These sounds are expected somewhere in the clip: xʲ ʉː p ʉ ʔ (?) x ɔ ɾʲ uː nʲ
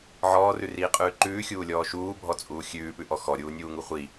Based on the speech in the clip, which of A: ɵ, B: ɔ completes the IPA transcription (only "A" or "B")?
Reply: B